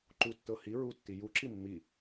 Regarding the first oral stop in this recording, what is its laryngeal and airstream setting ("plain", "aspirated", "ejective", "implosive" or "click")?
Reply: click